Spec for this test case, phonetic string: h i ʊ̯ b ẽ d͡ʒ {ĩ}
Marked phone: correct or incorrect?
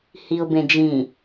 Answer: correct